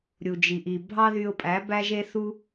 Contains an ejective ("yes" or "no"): yes